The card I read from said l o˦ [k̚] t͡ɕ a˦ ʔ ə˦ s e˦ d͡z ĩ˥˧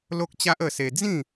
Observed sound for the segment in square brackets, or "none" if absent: k̚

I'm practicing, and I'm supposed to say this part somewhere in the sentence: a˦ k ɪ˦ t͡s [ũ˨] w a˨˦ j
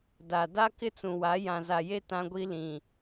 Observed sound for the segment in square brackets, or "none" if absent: ũ˨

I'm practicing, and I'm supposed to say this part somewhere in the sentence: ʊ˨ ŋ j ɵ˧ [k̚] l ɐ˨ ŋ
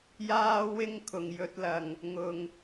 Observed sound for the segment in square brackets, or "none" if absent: t̚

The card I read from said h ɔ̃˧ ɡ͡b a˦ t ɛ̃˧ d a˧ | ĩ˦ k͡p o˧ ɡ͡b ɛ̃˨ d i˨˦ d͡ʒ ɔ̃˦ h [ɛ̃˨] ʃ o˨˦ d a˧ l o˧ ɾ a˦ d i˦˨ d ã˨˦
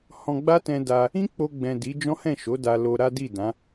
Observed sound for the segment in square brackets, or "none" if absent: ɛ̃˦˨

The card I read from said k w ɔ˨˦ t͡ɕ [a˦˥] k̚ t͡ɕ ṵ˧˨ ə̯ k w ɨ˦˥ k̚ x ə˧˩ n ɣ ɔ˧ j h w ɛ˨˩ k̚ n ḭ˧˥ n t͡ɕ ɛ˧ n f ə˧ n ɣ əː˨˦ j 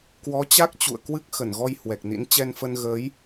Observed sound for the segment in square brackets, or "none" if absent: a˦˥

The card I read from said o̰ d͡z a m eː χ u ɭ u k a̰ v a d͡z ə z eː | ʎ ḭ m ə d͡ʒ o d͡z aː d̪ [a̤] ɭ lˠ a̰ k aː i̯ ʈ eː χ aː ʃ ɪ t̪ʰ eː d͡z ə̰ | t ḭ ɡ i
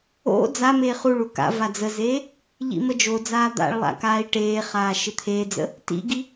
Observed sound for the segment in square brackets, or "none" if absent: a̰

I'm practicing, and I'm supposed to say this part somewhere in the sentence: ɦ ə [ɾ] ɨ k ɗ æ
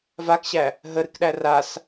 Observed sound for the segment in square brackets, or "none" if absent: ɾ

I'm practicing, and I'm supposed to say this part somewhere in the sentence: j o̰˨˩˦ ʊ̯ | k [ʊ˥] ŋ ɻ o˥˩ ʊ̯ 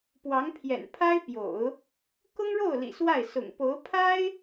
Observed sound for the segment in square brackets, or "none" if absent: ʊ˥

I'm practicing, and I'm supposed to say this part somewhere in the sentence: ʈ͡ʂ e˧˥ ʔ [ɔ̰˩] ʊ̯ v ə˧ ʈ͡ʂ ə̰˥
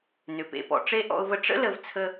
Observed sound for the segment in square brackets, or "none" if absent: ɔ̰˧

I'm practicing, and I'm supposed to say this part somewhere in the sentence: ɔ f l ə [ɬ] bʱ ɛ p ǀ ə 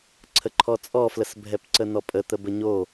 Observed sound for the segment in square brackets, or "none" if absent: s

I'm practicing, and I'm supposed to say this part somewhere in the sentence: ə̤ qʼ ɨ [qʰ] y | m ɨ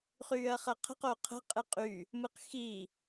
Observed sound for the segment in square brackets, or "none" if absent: qʼ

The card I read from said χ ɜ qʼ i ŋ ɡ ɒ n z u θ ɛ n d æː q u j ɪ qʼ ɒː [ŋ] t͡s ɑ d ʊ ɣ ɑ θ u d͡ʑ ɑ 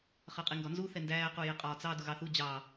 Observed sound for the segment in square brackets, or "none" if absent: none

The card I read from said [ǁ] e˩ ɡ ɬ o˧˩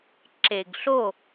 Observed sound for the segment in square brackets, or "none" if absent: ǁ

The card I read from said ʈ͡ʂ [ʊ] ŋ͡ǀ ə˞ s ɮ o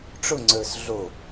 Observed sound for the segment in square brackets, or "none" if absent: ʊ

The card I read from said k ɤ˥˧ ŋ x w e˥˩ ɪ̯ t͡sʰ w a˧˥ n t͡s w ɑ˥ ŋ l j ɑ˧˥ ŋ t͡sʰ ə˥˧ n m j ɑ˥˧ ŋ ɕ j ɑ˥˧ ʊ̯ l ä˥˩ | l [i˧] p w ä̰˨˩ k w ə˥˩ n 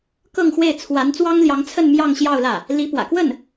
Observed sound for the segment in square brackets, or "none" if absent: i˧˥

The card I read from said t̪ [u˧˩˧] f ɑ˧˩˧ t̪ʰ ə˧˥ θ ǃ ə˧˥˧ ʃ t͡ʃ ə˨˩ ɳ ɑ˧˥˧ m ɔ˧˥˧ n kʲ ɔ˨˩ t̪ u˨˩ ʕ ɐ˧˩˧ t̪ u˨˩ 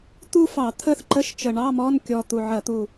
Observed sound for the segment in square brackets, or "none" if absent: u˥˧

